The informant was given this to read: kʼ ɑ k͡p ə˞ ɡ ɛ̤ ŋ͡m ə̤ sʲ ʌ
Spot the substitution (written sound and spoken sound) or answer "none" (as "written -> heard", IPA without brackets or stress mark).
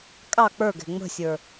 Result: ʌ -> ə˞